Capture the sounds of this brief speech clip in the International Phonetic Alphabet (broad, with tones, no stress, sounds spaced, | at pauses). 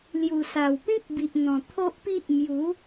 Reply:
l j u˨˩ s a˨˩ w p ĩ˦ k̚ b i˨ ʔ n̪ ɔ̃˨˩ t̪ʰ o˦ ʔ p i˦ ʔ m j u˨˦